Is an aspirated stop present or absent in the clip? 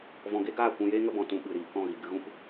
absent